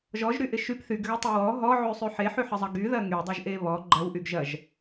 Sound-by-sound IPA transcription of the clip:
ʒ ɔ ʒ ɾ y ʔ ɪ ʃ y p θ y ɡ ɣ ɐ tˤ e w ɔ ɦ ɔ ʕ y sˤ y ħ e ħ y ħ ɪ zˤ ɐ ɡ y ð ɐ ŋ y dˤ ɐ ʒ ʔ e β ɔ ɡ͡ǃ ɐ w ʔ y ɡ ʒ ɐ ʒ

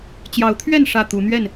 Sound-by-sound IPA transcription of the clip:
t͡ɕ j ɑ˨˦ ʊ̯ t̪ʰ ɥ ɛ˥˨ n ʂ ä˥˨ t̪ u˨˦ n̪ ɥ ɛ˥˨ n

